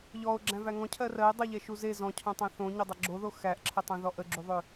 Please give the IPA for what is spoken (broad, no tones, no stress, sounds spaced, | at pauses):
ʎ ɔ o̯ ɡ͡ǁ æ̃ v æ ŋ ɔ̃ cʰ ɜ r ɜ e̯ dˤ ə ʎ ɛ ʃ u z e z ɔ̃ cʰ õ tˤ æ̃ θ õ ɲ o dˤ ə ɡ͡ǁ o ð o x æ ʔ ǁʰ ə tˤ ə̃ ð ɔ ʔ ə ɡ͡ǁ u ðˤ ø